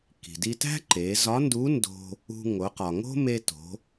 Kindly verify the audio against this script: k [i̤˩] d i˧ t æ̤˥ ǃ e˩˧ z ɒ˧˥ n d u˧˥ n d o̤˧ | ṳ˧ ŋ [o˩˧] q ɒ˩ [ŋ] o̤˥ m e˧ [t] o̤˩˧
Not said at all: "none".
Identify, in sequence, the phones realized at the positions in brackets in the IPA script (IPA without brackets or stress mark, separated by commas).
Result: i̤˩, o˩˧, ŋ, t